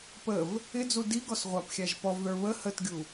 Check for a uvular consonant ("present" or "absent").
present